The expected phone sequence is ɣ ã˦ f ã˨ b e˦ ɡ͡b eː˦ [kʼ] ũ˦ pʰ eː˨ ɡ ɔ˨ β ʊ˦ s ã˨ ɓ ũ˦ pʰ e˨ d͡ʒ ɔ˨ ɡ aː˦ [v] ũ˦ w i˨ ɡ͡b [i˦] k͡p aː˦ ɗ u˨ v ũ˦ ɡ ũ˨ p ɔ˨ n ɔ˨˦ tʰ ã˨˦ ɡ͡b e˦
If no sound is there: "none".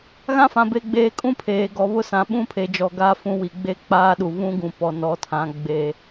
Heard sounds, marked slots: kʼ, f, e˦

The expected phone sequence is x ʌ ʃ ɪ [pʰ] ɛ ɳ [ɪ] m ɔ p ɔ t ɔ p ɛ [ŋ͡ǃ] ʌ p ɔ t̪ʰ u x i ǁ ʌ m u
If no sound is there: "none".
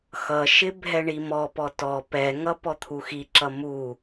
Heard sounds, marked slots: bʱ, i, ŋ

